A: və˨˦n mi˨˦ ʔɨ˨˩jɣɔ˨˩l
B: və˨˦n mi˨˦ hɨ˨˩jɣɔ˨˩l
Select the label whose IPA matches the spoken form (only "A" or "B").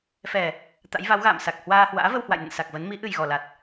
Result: A